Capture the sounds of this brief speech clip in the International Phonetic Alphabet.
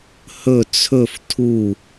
hɵ t͡sʰɵf tʰu

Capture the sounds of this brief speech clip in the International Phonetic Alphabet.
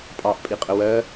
pʼɑʔpʼi qʼəwɜ

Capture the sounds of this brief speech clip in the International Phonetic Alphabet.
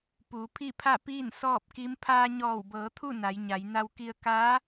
puː˩˧pʰi˥˨pʰa˥˨piː˥˨n sɔː˥˨p̚ki˧˥m pʰaː˧ ɲɔː˧˩wbɤː˩˧t̪ʰu˥˨ na˩˧jɲa˩˧j na˧wki˧ə̯ ka˧˥

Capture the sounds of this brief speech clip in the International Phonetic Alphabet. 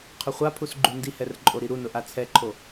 qʰʊχʷapʰus ɡ͡ǃundihɛr ǃʼoɾiɾunʊ ʔat͡sʰɛǃʰo

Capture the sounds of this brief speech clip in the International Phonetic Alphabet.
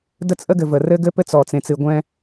də˦t͡sʼə˦ɡɘ˨və˨ rɘ˦ɡɘ˦pɘ˦t͡s ɔ˨t͡sẽ˨t͡sɨ˨ɡʷɛ̃˦

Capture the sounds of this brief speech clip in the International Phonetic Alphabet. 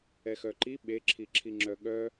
ɛxœǃi ɓeǁʰi ǁʰiŋ͡ǁœɠœ

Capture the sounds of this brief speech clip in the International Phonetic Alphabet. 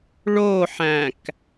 ɭoħæ̃k

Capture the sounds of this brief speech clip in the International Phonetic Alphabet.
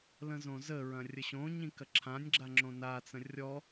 lə̃zõzəɹɐ̃ rʲəɕõɲĩ kɐǁʰãnʲɡ͡ǁa ŋ͡ǁõnat͡sə̃ rʲɔ

